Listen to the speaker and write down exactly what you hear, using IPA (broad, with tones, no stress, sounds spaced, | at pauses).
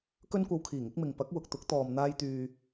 k ɵ˥ n kʷ ɐ˧ w kʰ iː˨˩ ŋ ɪ˥ k̚ m ɪ˨ ŋ p ɐ˨˥ k̚ w ʊ˨ k̚ t̪ ʊ˨˥ k̚ t̪ ɔː˨ m n̪ aː˧ j t̪ yː˨